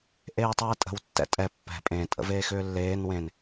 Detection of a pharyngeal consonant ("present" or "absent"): absent